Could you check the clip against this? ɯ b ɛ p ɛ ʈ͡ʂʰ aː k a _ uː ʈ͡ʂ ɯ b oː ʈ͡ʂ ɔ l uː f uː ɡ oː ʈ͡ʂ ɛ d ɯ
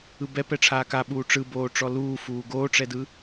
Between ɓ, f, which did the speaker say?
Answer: ɓ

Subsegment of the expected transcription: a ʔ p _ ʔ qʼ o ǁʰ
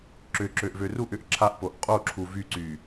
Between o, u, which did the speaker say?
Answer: o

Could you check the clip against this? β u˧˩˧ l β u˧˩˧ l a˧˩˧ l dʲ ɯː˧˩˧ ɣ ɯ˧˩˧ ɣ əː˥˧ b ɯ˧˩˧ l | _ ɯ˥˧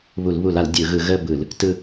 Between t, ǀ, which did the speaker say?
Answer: t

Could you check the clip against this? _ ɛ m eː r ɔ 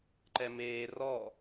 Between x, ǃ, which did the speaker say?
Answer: ǃ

